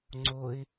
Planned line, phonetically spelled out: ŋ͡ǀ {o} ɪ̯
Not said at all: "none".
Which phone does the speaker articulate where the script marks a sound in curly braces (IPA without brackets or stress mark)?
o